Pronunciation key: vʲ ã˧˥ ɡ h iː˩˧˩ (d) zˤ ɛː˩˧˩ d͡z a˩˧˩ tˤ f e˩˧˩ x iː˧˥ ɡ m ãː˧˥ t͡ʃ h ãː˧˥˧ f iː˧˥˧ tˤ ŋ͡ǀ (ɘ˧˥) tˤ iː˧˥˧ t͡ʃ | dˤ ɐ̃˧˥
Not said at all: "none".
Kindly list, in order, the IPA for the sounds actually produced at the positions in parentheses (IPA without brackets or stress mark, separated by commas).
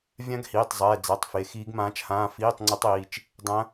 tˤ, ɘ˧˥